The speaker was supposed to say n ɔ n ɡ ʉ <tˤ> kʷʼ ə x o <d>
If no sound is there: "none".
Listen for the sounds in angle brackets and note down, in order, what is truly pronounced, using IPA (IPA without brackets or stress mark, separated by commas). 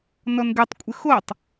tˤ, tˤ